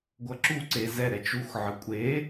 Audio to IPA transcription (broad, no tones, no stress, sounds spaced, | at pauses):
ɡʷ ʌ ǁ u ǀ e z ɛ ɾ ɛ t͡ʃ u x ʕ ɯ kʷʼ e